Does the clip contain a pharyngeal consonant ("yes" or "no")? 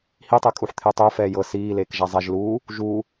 yes